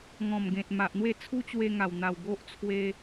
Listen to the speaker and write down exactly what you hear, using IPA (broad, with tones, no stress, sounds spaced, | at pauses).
ŋ ɔ̃˨˩ m ɡ ẽ˨ t̚ m a˨ ʔ n̪ w e˥˧ t͡sʰ u˦ t͡ɕ w e˧ ŋ a˨˩ w n̪ a˨˩ w ɡ o˦ ʔ t͡sʰ w e˧